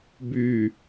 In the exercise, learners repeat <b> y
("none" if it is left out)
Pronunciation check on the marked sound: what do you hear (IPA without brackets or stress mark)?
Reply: b